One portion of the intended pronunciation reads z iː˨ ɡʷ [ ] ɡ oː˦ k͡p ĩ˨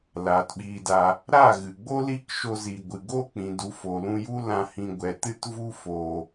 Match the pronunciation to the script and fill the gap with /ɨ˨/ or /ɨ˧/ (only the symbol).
ɨ˨